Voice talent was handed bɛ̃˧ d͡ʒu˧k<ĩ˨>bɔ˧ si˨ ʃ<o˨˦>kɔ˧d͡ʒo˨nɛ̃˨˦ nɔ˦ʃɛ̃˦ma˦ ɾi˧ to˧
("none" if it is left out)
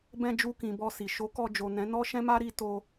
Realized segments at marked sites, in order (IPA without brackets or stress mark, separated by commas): ĩ˨, o˨˦